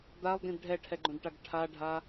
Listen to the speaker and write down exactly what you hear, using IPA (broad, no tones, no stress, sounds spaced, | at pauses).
d̪ a lˠ d ĩ d ɖʱ ɛ ʈʰ ɛ ɡ͡ǃ õ d ʈ a ɡ ʈʰ a ɖʱ a